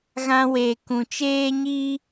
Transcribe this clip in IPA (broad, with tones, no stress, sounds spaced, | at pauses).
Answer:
ɣ ã˦ w e˧ k ũ˨ t͡ʃ eː˧ ɲ iː˧